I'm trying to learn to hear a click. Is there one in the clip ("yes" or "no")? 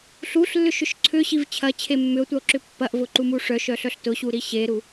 yes